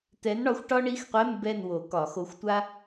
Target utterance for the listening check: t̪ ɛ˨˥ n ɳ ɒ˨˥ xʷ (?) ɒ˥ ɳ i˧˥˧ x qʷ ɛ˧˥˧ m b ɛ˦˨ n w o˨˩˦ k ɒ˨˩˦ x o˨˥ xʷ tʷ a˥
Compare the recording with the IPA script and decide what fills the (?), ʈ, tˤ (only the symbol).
ʈ